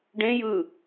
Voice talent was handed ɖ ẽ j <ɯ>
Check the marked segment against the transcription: correct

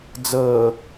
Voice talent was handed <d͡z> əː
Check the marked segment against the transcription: correct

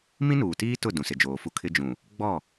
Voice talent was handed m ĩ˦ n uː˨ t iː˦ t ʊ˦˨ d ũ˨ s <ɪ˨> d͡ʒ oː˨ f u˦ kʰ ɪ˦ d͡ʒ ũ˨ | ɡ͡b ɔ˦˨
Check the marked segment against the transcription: correct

